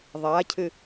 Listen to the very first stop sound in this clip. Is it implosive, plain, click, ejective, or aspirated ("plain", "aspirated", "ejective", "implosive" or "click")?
aspirated